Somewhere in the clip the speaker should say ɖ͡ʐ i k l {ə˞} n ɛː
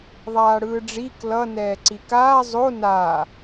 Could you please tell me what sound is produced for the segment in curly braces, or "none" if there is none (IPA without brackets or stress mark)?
ʌ